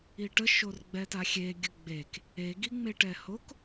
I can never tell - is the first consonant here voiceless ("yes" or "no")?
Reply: yes